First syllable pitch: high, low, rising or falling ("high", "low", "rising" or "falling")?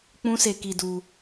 high